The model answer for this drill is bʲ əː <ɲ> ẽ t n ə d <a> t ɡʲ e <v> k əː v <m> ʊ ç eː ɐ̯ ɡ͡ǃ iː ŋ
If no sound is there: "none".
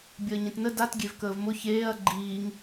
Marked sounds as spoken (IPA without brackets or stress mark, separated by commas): ɲ, a, v, m